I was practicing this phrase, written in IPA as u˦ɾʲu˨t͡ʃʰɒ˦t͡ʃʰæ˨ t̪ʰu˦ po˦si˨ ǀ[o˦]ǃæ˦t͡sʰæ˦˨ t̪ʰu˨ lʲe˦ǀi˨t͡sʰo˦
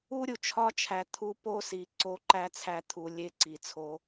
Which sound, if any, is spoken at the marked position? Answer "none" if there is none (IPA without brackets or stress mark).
o˦